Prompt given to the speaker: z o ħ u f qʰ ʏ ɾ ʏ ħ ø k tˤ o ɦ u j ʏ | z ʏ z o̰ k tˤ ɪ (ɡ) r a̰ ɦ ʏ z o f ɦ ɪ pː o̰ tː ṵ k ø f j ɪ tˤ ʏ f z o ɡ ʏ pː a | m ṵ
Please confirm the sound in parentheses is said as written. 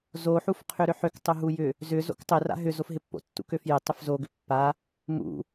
no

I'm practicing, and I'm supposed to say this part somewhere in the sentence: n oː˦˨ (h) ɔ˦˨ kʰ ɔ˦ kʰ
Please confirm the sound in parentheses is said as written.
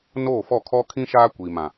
no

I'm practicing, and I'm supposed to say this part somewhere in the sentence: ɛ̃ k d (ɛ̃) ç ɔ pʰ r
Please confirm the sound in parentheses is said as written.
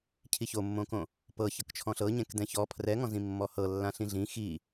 yes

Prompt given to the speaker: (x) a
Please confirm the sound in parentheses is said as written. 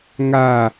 no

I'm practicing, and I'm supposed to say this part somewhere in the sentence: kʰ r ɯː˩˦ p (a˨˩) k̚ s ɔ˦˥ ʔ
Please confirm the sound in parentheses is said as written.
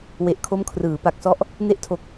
yes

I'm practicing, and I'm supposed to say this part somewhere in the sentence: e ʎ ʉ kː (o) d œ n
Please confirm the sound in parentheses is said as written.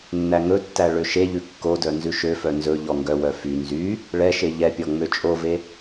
yes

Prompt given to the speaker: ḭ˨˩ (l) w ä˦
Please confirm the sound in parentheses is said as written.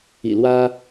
yes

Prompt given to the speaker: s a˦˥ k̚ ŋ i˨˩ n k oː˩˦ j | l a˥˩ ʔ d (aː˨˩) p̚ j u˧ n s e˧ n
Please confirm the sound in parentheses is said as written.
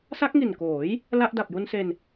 no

